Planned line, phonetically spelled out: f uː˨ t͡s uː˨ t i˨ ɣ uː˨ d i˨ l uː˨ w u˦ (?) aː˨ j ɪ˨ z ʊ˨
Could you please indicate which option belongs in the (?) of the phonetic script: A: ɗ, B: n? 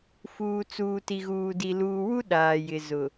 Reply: A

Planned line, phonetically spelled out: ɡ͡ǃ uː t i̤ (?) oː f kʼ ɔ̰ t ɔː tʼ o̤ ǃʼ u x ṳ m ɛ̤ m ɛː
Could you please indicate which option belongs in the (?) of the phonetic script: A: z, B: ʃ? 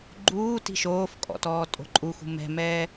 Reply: B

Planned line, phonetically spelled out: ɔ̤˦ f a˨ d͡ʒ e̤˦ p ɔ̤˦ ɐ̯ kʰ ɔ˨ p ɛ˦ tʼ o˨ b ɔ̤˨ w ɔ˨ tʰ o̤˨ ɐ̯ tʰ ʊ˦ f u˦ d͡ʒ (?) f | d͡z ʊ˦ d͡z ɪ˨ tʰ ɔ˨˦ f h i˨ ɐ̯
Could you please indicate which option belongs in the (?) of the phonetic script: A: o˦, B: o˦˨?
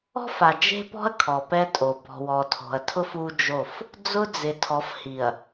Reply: B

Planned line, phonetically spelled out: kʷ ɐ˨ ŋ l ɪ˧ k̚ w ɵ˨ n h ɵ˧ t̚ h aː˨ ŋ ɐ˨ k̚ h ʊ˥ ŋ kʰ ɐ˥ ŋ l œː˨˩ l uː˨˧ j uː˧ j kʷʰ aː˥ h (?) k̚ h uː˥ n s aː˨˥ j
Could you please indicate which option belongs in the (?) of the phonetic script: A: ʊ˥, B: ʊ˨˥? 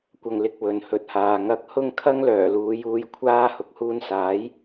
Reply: B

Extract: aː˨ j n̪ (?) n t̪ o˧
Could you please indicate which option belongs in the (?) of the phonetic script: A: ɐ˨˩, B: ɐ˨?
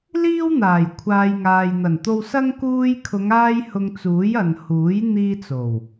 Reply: A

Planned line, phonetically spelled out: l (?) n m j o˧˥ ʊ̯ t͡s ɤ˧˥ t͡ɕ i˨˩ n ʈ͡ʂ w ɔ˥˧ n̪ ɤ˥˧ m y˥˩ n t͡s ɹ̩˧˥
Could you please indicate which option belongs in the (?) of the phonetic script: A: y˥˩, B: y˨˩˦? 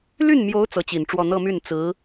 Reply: A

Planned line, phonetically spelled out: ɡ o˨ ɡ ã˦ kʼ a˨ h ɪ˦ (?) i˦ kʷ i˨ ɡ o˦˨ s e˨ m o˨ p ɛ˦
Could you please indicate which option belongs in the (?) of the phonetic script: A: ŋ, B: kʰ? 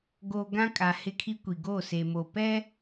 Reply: B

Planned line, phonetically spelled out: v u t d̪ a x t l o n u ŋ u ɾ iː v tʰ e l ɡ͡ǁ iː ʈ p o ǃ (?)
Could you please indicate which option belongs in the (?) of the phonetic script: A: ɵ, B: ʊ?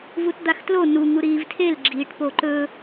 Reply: A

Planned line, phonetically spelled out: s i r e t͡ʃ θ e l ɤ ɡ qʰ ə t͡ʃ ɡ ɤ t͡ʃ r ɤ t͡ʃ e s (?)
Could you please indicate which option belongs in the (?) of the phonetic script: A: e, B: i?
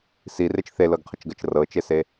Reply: A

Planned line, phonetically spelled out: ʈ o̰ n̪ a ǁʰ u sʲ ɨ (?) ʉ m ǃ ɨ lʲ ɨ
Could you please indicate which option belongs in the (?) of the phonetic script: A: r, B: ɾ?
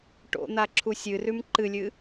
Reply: A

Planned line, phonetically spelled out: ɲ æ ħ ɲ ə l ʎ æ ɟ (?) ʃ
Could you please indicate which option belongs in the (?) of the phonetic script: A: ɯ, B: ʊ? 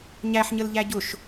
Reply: B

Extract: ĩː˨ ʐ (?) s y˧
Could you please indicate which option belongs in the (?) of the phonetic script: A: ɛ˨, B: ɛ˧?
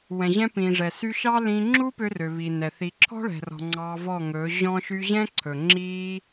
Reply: A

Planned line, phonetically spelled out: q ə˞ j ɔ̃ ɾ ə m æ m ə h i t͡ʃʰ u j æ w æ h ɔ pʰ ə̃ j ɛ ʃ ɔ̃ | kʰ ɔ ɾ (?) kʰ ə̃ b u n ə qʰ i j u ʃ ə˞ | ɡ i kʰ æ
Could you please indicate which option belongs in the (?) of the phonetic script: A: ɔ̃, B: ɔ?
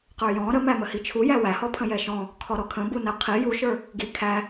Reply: B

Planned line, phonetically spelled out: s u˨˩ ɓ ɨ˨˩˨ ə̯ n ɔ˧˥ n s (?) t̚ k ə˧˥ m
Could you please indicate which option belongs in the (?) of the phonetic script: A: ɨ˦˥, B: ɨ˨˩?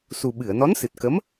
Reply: B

